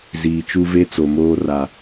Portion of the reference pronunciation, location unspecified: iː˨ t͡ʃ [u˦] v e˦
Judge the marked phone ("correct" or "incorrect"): correct